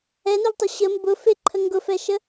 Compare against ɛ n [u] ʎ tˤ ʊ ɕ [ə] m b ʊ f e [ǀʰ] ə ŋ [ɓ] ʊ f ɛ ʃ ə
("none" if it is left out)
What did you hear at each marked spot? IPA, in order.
u, ə, ǃʰ, ɡ

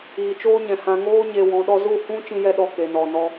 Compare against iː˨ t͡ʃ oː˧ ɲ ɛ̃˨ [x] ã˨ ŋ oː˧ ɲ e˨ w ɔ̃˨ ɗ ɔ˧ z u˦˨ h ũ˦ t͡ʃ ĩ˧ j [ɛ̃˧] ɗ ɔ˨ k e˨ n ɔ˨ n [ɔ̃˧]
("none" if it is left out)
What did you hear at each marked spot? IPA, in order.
h, ɛ˧, ɔ˧

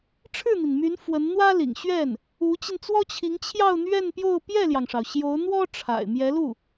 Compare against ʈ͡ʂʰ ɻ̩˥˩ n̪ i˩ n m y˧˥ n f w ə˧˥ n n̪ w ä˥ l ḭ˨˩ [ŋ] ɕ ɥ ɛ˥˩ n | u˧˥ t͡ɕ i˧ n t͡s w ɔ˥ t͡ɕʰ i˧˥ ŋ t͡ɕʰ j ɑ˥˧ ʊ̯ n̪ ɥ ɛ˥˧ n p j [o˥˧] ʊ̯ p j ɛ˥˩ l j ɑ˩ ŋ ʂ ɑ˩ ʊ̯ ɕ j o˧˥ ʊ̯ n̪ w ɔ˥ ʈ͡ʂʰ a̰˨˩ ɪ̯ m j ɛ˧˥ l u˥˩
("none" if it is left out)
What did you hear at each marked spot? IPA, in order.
ŋ, o˥˧

